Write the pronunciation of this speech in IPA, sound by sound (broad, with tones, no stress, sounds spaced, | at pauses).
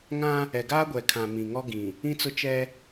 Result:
ŋ ã˦ | ɛ˨ ɡ aː˦ ɡʷ ɛ˨ kʰ ã˨ m ĩ˨ ŋ ɔ˦ ɡ ĩ˨ | ĩ˦ t͡s ʊ˦ t͡ʃ ɛ˦